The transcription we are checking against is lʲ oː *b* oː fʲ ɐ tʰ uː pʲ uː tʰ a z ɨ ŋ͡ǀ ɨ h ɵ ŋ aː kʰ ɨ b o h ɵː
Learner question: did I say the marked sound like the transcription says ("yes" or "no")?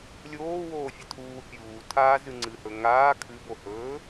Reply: no